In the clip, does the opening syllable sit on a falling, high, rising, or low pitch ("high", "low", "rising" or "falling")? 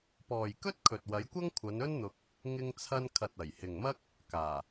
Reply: low